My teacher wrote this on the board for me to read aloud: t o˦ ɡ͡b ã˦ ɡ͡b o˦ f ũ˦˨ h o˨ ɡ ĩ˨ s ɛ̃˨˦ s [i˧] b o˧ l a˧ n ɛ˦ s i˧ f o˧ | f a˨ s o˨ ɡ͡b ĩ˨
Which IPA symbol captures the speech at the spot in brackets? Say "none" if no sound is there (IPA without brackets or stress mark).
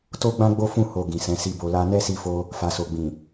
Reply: i˧